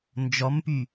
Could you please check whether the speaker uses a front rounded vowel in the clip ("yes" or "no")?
yes